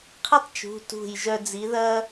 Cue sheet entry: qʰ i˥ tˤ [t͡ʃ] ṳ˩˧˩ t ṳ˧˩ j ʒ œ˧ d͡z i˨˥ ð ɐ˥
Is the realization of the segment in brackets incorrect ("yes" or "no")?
no